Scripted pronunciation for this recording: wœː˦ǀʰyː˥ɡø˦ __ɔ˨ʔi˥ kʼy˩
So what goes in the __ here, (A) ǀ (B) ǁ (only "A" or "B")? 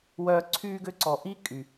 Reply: A